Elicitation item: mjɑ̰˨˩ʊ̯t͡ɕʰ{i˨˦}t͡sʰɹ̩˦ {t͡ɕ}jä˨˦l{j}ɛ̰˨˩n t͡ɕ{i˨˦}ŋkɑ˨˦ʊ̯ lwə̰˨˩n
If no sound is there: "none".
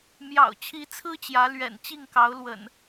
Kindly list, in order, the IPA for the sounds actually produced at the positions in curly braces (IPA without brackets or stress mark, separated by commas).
i˨˦, t͡ɕ, ɥ, i˥˨